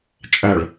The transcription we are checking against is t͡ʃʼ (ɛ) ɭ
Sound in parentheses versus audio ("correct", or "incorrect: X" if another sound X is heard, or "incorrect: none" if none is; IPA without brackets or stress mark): incorrect: æ